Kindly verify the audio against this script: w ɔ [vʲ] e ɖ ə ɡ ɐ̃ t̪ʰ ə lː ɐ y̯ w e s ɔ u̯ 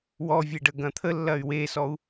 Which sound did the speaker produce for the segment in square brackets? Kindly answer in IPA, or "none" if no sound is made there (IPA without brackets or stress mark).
vʲ